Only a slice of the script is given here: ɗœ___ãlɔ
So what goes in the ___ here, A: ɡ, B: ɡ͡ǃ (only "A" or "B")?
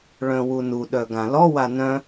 A